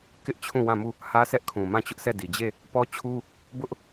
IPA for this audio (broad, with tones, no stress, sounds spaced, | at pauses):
k ɪ˦ ʔ t͡ɕʰ ũ˦˨ w ã˦˨ m u˦˨ | h ä˦ sʰ ɛ˦ ʔ kʰ ũ˨ m ã˦˨ t͡ɕ ʊ˦ ʔ s ɛ˦˨ d i˨ d͡ʑ e˦˨ | p ɔ˦ t͡ɕʰ u˦ | b ʊ˦ ʔ